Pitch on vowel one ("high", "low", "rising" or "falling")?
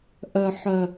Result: low